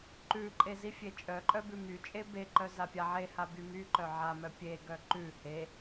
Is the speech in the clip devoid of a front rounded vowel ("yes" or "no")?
no